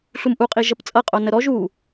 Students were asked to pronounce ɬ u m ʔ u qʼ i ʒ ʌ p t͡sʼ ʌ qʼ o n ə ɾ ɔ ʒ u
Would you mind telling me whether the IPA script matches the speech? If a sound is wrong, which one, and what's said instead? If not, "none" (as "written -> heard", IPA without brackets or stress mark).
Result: none